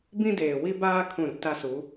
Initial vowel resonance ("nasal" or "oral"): nasal